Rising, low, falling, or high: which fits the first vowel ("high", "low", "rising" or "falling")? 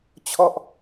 falling